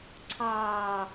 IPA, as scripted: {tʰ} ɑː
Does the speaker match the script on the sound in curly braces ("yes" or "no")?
no